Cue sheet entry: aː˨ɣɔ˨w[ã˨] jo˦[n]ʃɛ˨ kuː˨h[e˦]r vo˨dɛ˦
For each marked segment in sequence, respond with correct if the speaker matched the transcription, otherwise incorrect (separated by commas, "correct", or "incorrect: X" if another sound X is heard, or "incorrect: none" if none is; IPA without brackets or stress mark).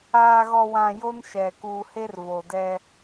correct, correct, correct